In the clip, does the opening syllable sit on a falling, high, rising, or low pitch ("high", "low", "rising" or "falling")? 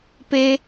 high